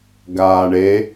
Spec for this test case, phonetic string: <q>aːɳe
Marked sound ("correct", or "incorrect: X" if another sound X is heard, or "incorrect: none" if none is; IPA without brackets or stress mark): incorrect: ɡ